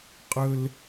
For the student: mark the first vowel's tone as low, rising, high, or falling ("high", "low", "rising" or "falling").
high